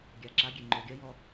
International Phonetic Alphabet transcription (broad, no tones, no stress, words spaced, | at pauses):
ɡʲaǁaɡʲe ŋ͡ǃoɡʲɐjɔ